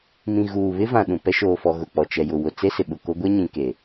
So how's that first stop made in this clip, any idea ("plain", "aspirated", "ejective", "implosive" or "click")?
implosive